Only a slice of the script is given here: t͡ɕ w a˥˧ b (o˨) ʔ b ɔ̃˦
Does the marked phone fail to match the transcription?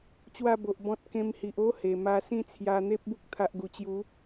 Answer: no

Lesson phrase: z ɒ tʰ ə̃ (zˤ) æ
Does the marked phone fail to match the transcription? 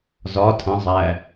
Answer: no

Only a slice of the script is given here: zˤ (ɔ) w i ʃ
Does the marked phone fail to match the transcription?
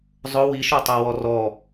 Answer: yes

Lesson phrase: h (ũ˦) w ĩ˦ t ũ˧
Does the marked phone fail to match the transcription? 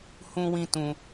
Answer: no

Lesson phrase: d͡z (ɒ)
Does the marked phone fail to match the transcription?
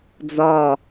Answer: no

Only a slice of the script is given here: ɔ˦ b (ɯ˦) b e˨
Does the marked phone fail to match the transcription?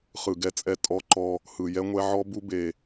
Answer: yes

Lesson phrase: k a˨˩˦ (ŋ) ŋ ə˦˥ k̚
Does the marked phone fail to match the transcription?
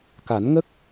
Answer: yes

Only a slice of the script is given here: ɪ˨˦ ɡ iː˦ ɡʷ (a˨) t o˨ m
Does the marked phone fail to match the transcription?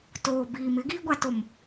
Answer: no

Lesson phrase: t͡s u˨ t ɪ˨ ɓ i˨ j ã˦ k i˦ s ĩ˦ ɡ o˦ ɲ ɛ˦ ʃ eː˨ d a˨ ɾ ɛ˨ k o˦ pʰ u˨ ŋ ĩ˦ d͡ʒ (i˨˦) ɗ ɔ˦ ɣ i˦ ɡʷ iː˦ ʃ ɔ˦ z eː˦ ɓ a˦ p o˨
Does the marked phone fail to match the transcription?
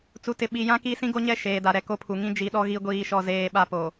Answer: no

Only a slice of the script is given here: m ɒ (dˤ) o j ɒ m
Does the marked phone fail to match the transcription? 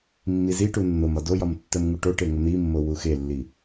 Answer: yes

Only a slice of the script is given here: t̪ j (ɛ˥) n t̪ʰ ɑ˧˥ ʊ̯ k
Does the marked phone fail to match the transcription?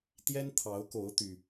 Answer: no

